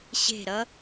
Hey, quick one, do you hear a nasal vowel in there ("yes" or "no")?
no